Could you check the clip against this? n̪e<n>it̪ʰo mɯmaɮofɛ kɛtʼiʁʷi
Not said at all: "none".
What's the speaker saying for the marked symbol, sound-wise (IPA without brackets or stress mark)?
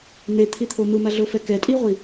t̪ʰ